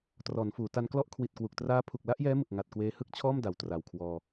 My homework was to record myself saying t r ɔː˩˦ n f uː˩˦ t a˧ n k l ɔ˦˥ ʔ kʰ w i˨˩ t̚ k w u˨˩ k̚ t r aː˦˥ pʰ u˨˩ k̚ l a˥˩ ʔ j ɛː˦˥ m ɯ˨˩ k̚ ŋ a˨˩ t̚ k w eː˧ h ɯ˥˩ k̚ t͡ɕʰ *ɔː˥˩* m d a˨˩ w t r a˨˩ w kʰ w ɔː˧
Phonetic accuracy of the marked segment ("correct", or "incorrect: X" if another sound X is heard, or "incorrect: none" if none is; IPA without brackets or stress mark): correct